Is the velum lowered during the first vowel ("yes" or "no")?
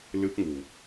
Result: no